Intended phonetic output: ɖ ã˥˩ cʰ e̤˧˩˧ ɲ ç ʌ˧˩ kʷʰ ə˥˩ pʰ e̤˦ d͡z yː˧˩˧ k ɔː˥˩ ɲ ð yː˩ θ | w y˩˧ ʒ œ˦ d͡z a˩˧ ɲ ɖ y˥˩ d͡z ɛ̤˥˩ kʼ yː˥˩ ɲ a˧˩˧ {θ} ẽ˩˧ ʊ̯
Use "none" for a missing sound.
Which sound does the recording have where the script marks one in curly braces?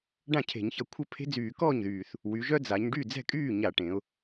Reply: ʈ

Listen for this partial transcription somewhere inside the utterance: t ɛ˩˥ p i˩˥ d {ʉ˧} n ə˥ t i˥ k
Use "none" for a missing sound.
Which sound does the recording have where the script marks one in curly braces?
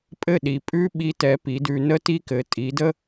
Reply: ʉ˧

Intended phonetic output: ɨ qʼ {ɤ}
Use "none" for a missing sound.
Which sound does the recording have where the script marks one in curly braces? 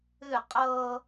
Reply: ɤ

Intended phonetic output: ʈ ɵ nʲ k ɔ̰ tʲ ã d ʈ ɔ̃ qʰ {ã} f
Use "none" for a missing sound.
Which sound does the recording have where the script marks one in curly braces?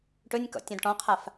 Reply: a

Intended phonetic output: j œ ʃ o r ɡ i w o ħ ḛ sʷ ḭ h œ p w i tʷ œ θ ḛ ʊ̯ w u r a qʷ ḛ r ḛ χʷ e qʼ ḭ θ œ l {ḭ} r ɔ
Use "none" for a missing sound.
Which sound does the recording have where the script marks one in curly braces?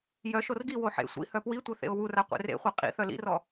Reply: ḭ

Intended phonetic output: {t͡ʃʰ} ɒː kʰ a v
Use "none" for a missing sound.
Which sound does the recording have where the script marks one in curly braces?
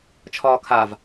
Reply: t͡ʃʰ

